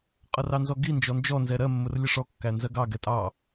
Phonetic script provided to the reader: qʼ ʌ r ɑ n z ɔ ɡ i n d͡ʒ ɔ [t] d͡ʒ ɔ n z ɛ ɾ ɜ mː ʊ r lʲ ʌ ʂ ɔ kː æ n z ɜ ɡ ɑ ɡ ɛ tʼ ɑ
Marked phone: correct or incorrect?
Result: incorrect